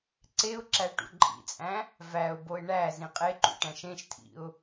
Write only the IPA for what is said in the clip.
ǀeʊ̯ǁæ ʈṵǃʼḭt͡sʼæ̃ | væʊ̯boɪ̯ ɳæ zĩqʼeǃṵ ʈæ̃ʃẽʃtʰḭʊ̯

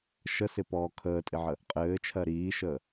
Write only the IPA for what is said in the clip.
ʃəsɪpɔː kʰəːtʼɪʕə | qʼɘːt͡ʃʰɜ ɾiːʃəː

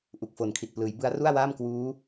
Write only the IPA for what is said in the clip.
ʔu˨˩k̚fo˨˩nkʰi˨˩t̚plɯː˩˦j bɯ˦˥a̯ru˥˩a̯waː˥˩m kwuː˦˥

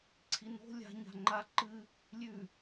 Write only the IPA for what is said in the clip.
ǀʰino̤ lʲa̤ ɲa̤ŋ͡ǃa ǃɨ | lʲʉ

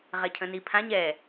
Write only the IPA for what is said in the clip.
ʁɛcʰə̃nipʰãɲ ɛ

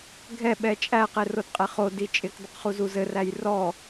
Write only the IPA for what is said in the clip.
ɡʱɛ ɓɛt͡ʃʼæqe rodqʼeχodi t͡ʃʼɪkdˤɪqχuzu zɘræj rɔ

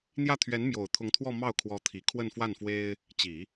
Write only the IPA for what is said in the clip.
n̪jä˥˩ t̪ʰɥɛ˧˥n mjo˨˩ʊ̯t̪ʰʊ˧˥ŋt̪ʰwɔ˥˧ mɑ˥˩ʊ̯kʰwɔ˧˥t̪ʰi˨˩ kʰwə˥˧nfwa˥˩nfwe˥ɪ̯ | t͡ɕi˨˩˦

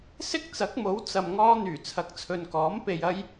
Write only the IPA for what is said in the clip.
sɪ˥k̚t͡sɐ˨˥k̚mo˨˥w t͡sɐ˧mŋɔː˥n̪yː˨˩ t͡sʰɐ˨˥k̚t͡sʰɵ˨nkɔː˨˥m pe˧j ɐ˥j

